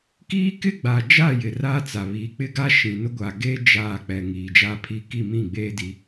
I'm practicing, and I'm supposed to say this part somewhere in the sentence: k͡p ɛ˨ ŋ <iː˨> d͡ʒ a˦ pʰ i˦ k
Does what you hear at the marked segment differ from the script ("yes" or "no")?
no